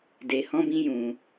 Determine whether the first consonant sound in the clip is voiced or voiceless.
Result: voiced